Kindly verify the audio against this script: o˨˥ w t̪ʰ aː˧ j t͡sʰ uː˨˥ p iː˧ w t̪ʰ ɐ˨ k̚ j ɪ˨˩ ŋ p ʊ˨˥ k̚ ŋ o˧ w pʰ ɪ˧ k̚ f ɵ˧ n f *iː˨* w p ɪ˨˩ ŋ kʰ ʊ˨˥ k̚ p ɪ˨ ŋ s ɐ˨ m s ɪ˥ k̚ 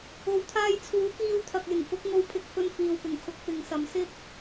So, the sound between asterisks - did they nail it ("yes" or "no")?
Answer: yes